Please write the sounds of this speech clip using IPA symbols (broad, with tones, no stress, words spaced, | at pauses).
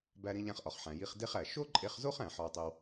bæ˧ɾĩ˧ʎæ̃˧χ ʔɒ˩χħæ̃˩ ji˧χ de˥χæ˩ ʃo˥ǃʼe˧χzo˥χæ̃˩ ħɒ˧wtˤi˧w